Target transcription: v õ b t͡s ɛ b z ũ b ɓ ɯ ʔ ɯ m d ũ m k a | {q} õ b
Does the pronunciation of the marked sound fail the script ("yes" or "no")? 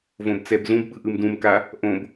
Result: yes